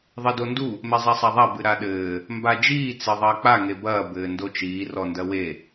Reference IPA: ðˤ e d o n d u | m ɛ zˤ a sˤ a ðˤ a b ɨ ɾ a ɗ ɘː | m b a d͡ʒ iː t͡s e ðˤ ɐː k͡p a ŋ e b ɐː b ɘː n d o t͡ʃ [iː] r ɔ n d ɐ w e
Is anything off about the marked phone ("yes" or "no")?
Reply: no